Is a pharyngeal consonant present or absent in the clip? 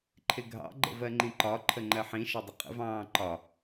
present